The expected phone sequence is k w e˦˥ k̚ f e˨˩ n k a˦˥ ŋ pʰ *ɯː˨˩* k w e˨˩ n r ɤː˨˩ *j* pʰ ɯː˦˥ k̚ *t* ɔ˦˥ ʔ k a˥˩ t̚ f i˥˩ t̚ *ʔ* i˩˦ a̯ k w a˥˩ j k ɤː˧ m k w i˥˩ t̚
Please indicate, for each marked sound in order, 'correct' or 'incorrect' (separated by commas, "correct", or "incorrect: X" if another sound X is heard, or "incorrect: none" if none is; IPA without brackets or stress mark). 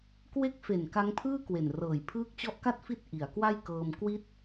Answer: incorrect: ɯː˥˩, correct, incorrect: t͡ɕ, correct